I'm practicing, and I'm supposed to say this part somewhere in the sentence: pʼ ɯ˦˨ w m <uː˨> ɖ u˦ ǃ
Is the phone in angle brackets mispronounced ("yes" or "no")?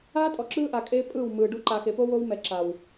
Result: yes